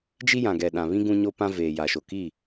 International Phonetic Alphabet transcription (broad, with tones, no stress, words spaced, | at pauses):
d͡ʒi˦jã˨ɡɛ˨ ɗã˨βĩ˦ ɡũ˦ɲo˦pã˦ veː˨ja˨ʃo˨ ki˦˨